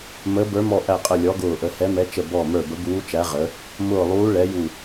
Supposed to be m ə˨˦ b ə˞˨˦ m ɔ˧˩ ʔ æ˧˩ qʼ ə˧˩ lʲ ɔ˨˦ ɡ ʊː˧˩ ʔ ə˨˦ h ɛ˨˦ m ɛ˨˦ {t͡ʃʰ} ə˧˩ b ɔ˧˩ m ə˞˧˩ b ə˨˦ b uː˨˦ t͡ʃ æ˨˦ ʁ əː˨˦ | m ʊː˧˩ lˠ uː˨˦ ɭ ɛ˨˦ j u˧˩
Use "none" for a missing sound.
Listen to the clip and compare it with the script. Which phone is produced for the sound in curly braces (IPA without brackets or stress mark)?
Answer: t͡ʃ